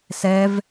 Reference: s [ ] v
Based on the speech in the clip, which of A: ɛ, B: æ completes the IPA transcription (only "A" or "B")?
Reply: A